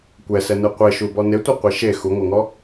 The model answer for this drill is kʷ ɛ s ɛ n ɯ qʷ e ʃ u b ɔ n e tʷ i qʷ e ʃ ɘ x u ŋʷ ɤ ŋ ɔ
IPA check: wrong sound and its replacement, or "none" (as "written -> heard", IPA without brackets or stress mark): ɘ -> e